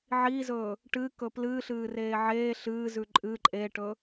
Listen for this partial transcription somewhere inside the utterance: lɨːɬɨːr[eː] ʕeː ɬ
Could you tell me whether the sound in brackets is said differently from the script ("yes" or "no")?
no